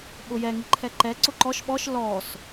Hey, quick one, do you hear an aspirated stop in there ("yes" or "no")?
yes